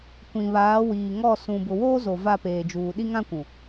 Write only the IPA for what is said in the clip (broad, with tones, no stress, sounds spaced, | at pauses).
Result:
kʷ ĩ˨ β aː˨˦ w iː˨ ŋ ɔ˦˨ s ũ˨ b ʊ˨ w oː˦ z o˨ v a˦˨ p eː˨ d͡ʒ uː˨ ɗ i˦ ŋ ã˦ kʷ ũ˨